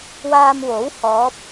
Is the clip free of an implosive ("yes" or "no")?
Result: yes